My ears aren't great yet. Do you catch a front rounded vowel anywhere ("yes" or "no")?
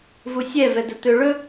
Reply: yes